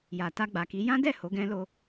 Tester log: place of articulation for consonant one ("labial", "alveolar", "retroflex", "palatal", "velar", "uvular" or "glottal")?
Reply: palatal